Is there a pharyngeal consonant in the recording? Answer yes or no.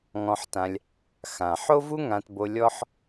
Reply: yes